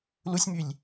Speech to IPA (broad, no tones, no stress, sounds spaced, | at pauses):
l u sʲ m y lʲ